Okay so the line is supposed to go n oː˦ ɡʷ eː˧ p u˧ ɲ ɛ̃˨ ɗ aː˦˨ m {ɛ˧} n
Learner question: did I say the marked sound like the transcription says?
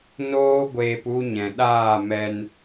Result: yes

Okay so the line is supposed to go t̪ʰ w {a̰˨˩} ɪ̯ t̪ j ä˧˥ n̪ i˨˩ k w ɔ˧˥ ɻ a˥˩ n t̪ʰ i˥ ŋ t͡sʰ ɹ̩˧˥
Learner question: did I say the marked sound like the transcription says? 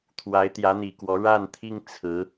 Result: no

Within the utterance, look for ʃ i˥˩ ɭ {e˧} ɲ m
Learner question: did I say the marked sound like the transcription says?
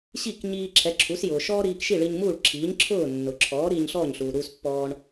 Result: no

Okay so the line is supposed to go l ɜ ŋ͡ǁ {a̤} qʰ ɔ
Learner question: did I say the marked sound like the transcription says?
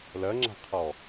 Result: yes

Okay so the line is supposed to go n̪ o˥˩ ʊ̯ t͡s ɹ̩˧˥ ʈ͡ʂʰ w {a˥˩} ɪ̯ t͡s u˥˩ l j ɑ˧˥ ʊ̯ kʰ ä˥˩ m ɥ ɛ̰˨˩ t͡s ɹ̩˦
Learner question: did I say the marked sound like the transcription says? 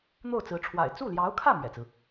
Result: no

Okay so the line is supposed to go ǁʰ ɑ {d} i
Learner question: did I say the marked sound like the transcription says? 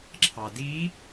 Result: yes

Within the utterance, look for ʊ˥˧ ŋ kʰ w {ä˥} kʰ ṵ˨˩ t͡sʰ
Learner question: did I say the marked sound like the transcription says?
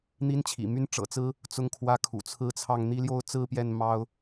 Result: no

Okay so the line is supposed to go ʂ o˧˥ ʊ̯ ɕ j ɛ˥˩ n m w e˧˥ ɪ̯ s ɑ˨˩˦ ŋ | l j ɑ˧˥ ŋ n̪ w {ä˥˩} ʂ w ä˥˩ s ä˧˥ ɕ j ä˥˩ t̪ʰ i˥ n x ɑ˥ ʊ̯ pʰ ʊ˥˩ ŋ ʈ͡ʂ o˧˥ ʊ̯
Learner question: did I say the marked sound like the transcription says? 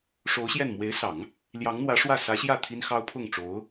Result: no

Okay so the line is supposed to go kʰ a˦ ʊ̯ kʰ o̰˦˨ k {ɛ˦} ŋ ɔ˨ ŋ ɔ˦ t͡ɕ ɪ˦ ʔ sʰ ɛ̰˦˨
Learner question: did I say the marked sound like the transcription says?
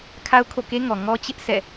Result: no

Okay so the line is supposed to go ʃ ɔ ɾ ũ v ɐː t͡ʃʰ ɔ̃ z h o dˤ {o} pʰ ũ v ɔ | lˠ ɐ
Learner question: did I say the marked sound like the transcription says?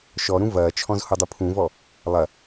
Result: no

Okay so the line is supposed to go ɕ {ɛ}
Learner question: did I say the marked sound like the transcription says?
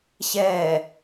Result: yes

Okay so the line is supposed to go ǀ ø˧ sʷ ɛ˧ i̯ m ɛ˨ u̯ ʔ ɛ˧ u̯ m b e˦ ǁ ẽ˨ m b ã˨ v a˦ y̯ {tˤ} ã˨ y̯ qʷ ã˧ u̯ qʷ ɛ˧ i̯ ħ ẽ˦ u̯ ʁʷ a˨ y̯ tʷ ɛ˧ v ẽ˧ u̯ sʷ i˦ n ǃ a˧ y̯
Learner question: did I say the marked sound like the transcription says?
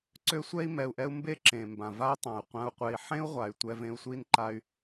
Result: yes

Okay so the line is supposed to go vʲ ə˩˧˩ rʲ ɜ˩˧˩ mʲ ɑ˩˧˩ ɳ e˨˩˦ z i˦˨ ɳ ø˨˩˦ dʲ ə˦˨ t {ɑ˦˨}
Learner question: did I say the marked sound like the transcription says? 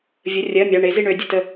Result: no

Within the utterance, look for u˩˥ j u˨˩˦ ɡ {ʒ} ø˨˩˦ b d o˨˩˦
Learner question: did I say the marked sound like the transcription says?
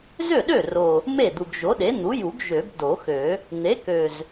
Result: yes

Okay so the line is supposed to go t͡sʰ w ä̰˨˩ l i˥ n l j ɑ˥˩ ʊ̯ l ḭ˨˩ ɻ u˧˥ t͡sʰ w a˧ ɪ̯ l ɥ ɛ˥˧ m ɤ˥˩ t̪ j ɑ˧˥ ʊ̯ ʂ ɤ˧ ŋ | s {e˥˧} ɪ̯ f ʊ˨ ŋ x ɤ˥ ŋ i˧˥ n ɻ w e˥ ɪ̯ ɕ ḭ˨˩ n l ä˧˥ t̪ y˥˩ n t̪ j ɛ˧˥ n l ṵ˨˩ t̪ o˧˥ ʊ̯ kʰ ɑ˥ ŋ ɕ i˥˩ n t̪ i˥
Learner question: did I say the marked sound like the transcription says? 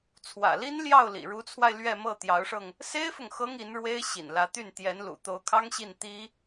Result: no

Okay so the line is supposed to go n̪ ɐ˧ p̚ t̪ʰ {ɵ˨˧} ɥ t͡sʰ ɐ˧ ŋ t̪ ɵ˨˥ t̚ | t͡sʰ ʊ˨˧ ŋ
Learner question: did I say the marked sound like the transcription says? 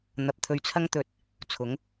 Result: no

